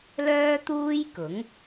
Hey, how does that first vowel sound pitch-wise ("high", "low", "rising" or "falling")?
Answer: high